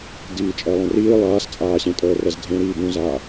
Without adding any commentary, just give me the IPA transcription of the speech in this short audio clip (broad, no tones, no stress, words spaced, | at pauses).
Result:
diːt͡ʃʼɛlˠẽriː lˠaːst͡sʼaːɕẽtʼəː rɛzdʱẽ ɾiːbũzaː